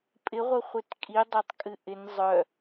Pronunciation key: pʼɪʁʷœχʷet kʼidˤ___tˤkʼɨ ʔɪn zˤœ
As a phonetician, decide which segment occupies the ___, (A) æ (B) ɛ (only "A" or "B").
A